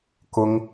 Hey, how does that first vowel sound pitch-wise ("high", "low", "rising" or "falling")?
high